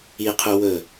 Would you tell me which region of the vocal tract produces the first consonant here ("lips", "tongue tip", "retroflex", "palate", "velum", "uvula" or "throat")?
uvula